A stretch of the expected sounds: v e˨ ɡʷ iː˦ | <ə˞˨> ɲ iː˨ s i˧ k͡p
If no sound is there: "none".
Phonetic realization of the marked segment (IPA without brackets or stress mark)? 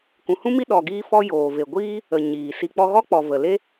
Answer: ə˨